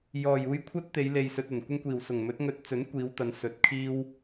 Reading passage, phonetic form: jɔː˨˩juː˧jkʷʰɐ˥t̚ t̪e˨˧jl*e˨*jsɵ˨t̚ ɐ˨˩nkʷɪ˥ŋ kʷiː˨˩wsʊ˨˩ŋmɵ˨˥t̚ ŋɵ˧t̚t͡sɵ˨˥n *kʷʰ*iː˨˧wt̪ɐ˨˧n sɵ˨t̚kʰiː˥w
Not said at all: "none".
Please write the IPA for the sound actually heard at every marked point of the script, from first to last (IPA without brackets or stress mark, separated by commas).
e˨, kʷ